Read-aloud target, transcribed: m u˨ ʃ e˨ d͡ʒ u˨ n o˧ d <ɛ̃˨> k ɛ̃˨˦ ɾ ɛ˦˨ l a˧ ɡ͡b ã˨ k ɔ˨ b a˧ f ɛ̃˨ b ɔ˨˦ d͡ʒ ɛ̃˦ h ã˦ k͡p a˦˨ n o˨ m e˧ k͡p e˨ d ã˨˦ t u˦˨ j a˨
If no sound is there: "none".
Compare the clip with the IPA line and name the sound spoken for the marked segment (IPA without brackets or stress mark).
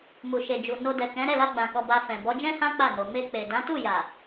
ɛ˨